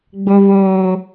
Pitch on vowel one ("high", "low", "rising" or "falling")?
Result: high